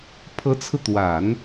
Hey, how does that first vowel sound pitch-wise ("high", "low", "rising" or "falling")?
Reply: rising